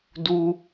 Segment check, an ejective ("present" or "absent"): absent